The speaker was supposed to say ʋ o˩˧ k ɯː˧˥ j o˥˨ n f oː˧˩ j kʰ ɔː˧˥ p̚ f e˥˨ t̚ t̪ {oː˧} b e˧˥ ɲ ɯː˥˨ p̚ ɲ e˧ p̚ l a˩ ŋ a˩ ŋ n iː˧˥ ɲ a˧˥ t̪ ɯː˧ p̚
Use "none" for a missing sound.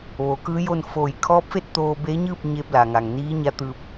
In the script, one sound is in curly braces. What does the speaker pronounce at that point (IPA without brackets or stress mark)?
oː˧